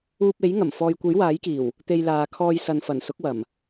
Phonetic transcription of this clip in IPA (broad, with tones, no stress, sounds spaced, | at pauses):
uː˧ p̚ e˨˥ j ŋ ɐ˨˩ m f ɔː˨ j kʷ e˨˥ j w aː˨˥ j k iː˨˩ w | t̪ e˧ j l aː˨ kʰ ɔː˧ j s ɐ˨ n f ɐ˨˩ n s ʊ˨˥ k̚ w ɐ˨˩ m